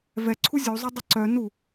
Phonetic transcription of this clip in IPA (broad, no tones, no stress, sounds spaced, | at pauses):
v ɛ ǀʰ u zʲ u zˤ œ dˤ ə ǀ œ n u